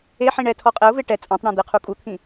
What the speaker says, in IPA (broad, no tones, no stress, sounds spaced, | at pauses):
e ħ ĩ ɳ ɛ tʰ ɔ qʼ ɛ ʊ̯ v e ʈ ɛ t͡sʼ ã tˤ ɳ ã d̪ e qʰ u kʼ u t̪ʰ ĩ